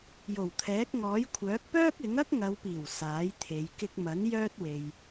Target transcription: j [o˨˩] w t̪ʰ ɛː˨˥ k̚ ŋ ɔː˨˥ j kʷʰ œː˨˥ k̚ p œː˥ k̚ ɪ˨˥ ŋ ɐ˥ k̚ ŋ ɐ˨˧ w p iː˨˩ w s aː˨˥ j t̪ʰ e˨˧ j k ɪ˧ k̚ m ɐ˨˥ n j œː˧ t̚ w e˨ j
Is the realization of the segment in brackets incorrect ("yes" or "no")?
no